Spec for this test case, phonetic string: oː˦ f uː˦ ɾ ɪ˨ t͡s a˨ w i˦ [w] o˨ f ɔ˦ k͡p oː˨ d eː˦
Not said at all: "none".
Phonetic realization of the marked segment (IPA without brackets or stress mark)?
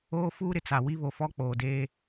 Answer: β